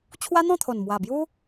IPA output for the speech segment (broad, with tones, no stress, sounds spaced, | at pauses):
t͡ɕʰ w a˦ n̪ ɔ̃˥˧ t̪ʰ o˨˩ n m w a˨˩ b j u˦